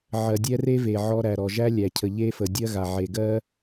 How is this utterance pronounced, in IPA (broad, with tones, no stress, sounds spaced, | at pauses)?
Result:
ʕ ɜ˨ dʲ ɛ˧ r e˦ v e˨ ʕ ɔ˧ ɾ æ˨ ɾ ɔ˨ ʒ æ˦ lʲ æ˨ cʰ ə˨ ʎ e˦ f ə˨ dʲ ɜ˦ ɣ a˨ ʕ e˨ ɡ ɜ˦